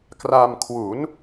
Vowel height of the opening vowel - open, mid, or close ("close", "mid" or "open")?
open